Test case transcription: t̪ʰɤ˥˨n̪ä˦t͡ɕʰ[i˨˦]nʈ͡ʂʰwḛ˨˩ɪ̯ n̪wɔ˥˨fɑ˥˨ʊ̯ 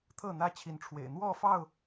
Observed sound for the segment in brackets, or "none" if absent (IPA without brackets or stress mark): i˨˦